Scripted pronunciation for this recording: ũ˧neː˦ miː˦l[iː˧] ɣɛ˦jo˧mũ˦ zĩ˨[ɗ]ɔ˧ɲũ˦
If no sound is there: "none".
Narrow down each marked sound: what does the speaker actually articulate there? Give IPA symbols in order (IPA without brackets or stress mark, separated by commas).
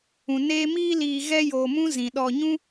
iː˧, ɗ